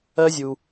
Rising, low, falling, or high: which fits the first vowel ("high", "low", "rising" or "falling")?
high